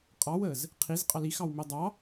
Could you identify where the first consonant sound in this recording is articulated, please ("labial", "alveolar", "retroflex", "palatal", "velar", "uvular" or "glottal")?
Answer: uvular